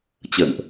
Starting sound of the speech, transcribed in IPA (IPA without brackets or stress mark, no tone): t͡ɕ